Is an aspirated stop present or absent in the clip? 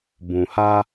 absent